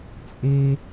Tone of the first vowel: high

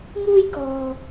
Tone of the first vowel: high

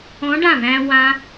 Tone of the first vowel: rising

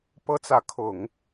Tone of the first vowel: high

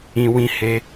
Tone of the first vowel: low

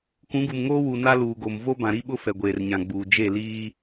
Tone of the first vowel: rising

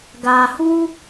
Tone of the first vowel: low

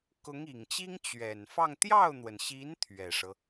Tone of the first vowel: rising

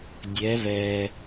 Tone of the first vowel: rising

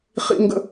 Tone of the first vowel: low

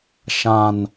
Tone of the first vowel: low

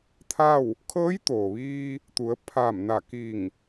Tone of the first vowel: falling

